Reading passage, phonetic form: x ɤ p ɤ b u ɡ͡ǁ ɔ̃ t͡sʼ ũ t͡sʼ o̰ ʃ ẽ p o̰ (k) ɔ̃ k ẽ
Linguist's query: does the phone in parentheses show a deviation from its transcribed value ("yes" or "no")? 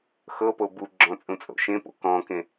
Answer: no